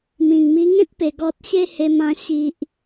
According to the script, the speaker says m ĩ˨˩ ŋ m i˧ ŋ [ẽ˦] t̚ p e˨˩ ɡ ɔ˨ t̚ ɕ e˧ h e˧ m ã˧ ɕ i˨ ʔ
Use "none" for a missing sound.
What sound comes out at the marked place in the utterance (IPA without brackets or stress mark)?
ẽ˦